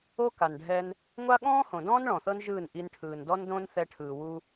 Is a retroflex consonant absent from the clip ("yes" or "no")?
no